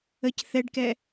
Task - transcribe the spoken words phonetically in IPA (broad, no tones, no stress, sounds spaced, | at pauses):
ə c θ ɛ ɖ k ɛ